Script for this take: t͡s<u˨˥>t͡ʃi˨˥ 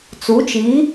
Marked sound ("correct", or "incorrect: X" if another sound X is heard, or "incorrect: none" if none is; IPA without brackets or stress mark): correct